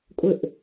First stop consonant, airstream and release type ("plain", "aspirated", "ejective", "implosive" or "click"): ejective